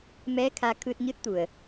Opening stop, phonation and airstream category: aspirated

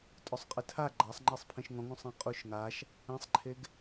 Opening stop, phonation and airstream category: ejective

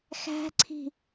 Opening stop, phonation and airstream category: click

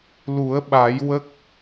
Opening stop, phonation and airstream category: implosive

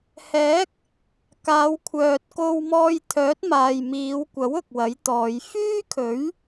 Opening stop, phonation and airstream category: plain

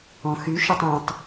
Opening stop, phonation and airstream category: plain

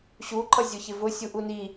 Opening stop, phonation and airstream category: click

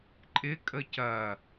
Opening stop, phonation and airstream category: click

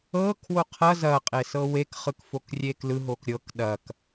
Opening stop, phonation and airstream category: aspirated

